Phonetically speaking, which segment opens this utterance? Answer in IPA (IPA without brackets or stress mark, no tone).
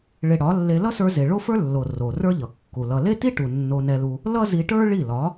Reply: ɭ